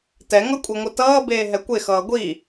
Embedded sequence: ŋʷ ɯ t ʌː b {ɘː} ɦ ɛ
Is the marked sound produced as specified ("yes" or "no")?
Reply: no